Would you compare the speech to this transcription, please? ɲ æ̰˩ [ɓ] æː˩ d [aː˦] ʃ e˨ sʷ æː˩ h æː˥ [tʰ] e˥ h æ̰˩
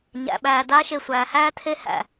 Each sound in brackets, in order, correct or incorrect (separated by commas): correct, correct, correct